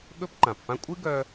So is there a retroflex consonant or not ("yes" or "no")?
no